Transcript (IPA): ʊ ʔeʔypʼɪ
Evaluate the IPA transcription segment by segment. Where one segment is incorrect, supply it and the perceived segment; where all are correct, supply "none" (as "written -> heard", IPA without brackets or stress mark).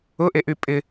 none